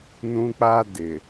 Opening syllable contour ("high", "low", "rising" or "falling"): high